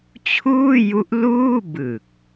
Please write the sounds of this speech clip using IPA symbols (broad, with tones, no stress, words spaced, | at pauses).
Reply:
t͡ɕʰuː˥˩ju˦˥ʔ luː˥˩ bɯ˨˩k̚